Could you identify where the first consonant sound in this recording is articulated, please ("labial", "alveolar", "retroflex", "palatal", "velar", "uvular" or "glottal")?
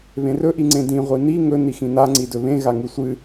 labial